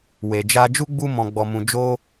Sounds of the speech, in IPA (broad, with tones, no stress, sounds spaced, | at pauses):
w e˨ d͡ʒ a˧ d͡ʒ u˦ ɡ͡b u˦ m ɔ̃˧ ɡ͡b ɔ˧ m ũ˧ d͡ʒ o˦